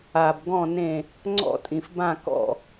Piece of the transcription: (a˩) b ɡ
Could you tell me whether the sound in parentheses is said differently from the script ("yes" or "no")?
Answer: no